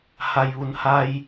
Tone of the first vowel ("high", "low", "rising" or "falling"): low